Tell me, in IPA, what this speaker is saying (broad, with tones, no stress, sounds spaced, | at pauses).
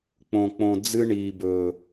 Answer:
k͡p õ˨ k͡p õ˨ d͡z ɨ˦ ɳ iː˨ b ɵː˨